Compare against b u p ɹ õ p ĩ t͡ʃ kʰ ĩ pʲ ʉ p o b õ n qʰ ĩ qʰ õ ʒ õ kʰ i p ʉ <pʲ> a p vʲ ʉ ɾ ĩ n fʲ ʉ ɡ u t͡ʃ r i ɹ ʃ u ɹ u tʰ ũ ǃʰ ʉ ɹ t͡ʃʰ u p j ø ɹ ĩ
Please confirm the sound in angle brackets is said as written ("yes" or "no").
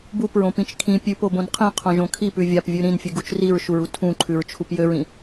no